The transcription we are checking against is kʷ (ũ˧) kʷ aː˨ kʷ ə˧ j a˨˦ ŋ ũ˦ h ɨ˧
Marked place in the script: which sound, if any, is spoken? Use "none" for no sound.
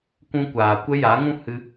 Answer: ũ˧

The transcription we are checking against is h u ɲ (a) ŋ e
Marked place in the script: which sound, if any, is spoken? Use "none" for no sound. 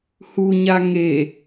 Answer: a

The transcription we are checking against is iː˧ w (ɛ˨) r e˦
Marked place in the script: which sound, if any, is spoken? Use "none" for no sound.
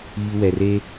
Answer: ɛ˨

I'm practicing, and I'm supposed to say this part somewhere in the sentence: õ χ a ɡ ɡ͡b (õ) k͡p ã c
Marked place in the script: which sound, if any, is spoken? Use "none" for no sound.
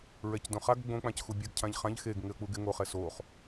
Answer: õ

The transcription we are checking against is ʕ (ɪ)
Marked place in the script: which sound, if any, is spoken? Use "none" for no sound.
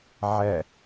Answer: ɛ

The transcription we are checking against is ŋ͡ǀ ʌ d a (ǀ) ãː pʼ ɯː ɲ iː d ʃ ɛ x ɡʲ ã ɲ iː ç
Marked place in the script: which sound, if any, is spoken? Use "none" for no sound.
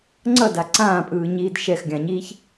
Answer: ǀ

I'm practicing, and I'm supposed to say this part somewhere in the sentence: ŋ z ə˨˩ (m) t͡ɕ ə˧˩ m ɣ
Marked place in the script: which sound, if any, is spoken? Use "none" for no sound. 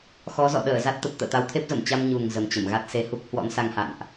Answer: m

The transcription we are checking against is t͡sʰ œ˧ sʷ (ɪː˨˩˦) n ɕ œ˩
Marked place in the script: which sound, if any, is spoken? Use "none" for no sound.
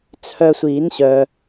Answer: iː˨˩˦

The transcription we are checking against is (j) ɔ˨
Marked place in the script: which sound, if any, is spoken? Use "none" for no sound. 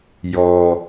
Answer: j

